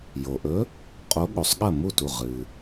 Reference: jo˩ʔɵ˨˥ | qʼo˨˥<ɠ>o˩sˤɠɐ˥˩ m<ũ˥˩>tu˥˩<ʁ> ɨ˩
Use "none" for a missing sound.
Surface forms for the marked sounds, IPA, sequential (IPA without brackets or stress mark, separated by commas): ɠ, u˥˩, ʁ